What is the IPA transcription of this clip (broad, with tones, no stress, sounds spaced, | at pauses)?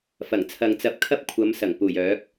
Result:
f ɐ˨˩ ŋ t͡sʰ ɐ˨ ŋ t͡s ɐ˧ p̚ kʰ ɐ˥ p̚ kʷʰ ɐ˨˧ m s ɐ˨˩ ŋ p uː˨˩ j œː˨˥ k̚